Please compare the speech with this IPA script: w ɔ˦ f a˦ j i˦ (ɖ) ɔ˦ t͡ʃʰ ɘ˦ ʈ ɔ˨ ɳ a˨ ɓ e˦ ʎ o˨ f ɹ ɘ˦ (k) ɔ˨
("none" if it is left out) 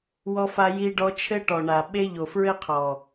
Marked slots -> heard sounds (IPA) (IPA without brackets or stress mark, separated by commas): ɖ, qʰ